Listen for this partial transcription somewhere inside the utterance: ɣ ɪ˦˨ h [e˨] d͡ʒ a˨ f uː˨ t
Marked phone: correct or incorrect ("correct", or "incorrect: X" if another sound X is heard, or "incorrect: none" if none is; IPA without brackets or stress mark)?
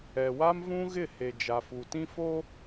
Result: correct